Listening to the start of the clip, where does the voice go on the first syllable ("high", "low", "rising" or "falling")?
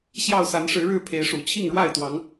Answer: falling